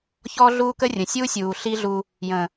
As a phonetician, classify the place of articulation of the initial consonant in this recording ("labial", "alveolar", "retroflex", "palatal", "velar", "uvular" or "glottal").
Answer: palatal